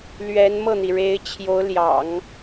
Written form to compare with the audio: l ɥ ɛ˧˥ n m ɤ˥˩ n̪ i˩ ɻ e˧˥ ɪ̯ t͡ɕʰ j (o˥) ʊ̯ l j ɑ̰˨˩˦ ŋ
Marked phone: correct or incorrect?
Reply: incorrect